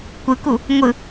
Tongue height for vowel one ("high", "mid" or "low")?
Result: high